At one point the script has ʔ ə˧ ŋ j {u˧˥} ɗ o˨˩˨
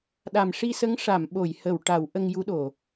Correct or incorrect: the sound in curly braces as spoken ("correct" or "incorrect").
correct